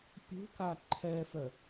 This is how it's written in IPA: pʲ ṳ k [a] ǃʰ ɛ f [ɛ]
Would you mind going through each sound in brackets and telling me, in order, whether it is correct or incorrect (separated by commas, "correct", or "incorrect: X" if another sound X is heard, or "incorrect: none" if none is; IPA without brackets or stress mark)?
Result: correct, incorrect: œ